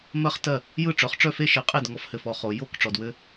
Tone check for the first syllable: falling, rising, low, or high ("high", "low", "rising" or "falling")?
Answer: high